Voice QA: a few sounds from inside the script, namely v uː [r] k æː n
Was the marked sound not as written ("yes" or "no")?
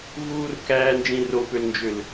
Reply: no